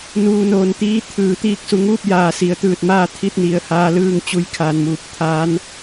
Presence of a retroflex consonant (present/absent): absent